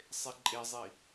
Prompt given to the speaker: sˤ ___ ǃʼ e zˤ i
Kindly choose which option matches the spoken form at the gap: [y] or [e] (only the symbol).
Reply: e